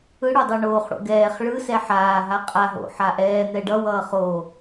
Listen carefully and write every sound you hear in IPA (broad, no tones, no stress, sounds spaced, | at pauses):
ɯ ɽ o dˤ o ɳ oː χ ɽ o̰ ɡ ɛː χ ɭ ɯ s ɛ ħ aː ɦ a qʼ a ɦ o̰ ħ a ʔ ɛː n̪ ɛ ɖ ʌ w ʌː χ oː